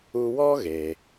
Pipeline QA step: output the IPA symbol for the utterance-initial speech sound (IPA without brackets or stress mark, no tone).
u